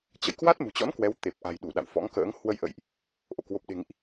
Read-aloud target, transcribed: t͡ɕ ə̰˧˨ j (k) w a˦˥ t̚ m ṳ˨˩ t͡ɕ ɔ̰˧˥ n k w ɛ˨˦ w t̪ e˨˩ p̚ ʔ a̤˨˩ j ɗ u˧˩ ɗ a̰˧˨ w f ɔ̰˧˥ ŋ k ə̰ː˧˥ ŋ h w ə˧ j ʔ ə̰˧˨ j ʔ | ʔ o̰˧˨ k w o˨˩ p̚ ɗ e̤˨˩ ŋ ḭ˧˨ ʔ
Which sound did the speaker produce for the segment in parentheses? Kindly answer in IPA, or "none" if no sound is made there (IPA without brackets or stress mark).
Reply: k